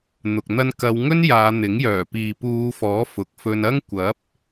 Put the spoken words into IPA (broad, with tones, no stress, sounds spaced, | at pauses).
n̪ ʊ˨ k̚ n̪ ɐ˧ n k ɐ˨˧ w ŋ ɵ˥ n j aː˨˧ n̪ ɪ˨˥ ŋ j œː˨˩ p iː˨ p uː˨˧ f ɔː˨˥ f ʊ˨ k̚ f ɵ˧ n ɐ˥ ŋ kʷ ɐ˨˥ p̚